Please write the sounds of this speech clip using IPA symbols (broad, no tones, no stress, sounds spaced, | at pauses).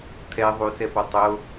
t̪ʰ ɛ ðˤ u s ɛ p ɔ tˤ o